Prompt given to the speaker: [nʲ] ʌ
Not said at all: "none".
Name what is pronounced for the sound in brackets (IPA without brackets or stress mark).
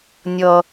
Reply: nʲ